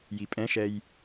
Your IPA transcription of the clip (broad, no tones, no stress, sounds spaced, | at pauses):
j i pʼ ɛ̃ ʃ ɛ j